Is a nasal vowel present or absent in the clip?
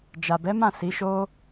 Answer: present